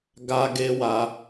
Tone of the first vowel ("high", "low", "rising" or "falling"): high